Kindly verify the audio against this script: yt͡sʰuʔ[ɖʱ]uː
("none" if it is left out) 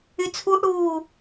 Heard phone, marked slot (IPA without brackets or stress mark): ɽ